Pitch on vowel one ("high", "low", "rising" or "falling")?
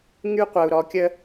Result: high